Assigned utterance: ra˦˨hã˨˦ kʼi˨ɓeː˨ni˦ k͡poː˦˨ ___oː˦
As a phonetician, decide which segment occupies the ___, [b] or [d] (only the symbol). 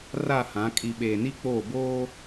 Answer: b